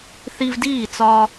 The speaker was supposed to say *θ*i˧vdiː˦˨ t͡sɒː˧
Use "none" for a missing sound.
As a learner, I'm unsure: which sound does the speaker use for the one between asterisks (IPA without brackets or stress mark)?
θ